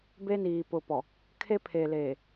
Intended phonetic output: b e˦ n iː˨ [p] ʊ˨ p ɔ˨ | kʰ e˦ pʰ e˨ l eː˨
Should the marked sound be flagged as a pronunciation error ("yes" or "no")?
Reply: no